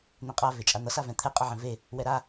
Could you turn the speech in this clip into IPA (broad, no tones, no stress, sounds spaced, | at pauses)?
n̪ ẽ qʼ a v e t͡ʃʼ a n̪ ʌ s a v ɛ̃ t̪ʰ ɛ qʼ ʌ ʕ ɛ̃ v e | w ɛ ɾ a